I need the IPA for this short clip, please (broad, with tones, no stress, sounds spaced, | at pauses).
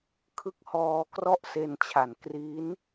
kʰ ɯ˦˥ k̚ h ɔː˧ k r ɔ˥˩ ʔ s e˧ n t͡ɕʰ a˨˩ n k r i˦˥ n